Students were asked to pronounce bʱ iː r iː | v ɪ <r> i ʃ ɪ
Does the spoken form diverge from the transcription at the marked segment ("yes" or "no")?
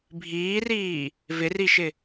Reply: no